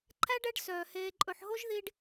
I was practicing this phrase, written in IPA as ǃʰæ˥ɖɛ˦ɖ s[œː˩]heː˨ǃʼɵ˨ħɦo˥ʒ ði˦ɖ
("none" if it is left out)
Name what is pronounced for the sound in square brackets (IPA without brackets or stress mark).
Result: œː˩